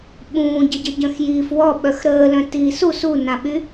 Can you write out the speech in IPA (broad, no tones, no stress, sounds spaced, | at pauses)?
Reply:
ɓ ũː ɟ ə ɟ ə ɟ œ̃ x j iː f w ɔ ɓ œ x ɾ əː l œ̃ t iː s u s u n ã ɓ y